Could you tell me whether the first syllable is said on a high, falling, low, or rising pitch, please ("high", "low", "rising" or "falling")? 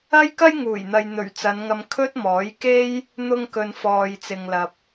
high